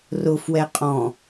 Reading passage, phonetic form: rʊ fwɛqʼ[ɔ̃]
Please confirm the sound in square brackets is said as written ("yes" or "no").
yes